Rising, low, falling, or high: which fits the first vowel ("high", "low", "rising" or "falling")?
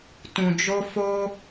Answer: low